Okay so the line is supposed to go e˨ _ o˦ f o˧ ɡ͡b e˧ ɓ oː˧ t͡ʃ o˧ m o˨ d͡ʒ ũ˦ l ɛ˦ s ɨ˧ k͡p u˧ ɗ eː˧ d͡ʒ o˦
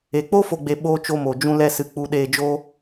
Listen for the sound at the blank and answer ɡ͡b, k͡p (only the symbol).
k͡p